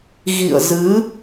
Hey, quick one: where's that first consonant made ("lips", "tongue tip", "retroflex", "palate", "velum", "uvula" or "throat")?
velum